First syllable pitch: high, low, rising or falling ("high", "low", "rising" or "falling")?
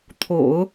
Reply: low